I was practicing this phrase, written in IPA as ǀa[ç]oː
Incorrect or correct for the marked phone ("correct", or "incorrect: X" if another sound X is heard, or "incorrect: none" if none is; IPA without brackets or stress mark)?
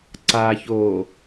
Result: correct